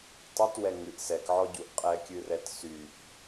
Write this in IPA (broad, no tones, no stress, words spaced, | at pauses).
tˤytwɛ ŋɨʔ sɛkʕɔɟuʔ qʼɛkʲɨrɛt syʔ